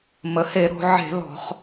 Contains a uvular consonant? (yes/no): yes